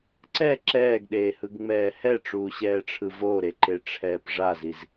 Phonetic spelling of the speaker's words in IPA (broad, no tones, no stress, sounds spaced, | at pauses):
ǀ ɛ ǁ ɛː ɡ ɗ eː h ɯ ɡ ŋ͡m ɛː h ɛ ʈ͡ʂ uː ɕ ɛː ʈ͡ʂʰ ɯ v o ɾ e ǃ e ʈ͡ʂʰ ɛː p ʐ a z i z